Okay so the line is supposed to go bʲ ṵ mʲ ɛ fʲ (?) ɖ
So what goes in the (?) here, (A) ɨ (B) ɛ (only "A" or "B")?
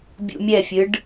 A